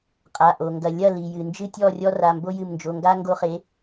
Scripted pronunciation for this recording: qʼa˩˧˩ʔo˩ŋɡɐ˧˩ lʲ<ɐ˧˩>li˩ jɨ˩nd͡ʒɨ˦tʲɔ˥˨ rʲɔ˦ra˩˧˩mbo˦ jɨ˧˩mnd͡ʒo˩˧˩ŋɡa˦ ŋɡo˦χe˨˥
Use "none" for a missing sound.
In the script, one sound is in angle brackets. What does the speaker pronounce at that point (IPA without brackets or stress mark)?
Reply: ɐ˥˨